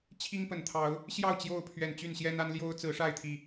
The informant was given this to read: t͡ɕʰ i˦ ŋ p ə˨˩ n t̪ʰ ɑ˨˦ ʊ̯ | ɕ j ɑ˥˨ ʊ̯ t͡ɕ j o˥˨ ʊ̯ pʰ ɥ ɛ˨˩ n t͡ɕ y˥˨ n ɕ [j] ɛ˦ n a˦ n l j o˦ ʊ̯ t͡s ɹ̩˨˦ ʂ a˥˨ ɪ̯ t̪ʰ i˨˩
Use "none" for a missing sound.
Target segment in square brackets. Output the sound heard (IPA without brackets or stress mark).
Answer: j